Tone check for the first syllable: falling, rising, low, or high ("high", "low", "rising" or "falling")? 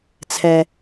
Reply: low